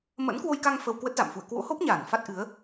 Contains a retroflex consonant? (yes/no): no